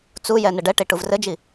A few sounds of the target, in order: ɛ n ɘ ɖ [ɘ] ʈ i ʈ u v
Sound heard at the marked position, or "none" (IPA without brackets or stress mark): ɛ